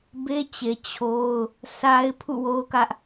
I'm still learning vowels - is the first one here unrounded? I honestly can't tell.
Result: yes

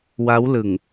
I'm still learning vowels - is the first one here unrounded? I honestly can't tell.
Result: yes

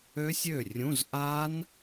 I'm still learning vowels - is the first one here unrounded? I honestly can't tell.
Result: no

